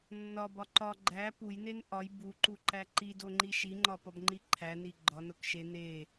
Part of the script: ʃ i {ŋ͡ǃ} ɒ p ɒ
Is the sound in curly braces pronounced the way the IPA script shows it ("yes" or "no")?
yes